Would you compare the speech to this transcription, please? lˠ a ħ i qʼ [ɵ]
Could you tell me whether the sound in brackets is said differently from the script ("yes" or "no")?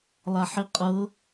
yes